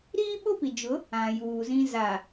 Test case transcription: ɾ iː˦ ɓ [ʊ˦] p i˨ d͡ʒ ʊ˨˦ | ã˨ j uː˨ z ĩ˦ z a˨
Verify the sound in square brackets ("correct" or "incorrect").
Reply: correct